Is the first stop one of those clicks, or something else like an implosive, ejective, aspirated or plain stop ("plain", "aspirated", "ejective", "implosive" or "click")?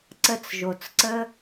click